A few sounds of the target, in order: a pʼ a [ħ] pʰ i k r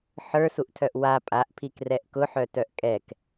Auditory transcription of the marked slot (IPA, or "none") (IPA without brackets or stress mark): ʔ